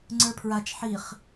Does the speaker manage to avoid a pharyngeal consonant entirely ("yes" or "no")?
no